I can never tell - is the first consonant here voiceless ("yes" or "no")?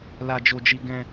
no